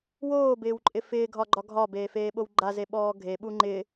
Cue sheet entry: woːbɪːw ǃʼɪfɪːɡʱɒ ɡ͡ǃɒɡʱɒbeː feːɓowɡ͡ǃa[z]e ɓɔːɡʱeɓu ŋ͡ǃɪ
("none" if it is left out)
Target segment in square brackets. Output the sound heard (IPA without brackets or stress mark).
z